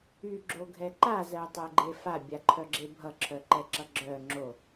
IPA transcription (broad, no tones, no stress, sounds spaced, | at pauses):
y ɡ͡ǁ o ɡʱ ɛ ǃ a z ɜ tˤ ɜ ɡ͡ǃ e f a bʲ a ǃʰ œ ɡ͡ǁ e bʱ ʌ ǁʰ œ ǃ ɛ ǁ ʌ ɡ͡ǁ œ ŋ͡ǁ o